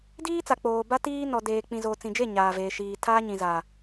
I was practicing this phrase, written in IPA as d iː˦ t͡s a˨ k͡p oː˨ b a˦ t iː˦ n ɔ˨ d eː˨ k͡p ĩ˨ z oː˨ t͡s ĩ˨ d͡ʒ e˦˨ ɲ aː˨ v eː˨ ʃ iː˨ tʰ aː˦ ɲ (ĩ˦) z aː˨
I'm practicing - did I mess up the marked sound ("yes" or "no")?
yes